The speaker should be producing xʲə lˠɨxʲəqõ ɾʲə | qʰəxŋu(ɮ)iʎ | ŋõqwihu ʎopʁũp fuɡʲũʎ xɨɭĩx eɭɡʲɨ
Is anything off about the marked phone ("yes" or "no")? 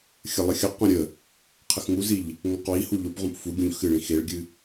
yes